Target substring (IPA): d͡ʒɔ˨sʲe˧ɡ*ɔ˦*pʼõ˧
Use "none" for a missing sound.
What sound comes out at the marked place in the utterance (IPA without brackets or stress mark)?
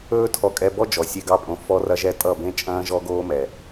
ɑ˦